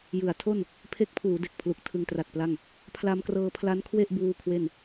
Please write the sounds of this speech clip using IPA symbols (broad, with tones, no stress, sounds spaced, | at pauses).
j ɯ˩˦ a̯ tʰ o˥˩ n | pʰ e˦˥ k̚ pʰ uː˩˦ d e˨˩ k̚ pʰ l u˨˩ k̚ tʰ ɯ˧ ŋ t r a˨˩ t̚ p l a˥˩ ŋ | pʰ l a˧ m k r ɤː˧ pʰ l a˦˥ n kʰ w e˥˩ ʔ b uː˧ kʰ w e˥˩ n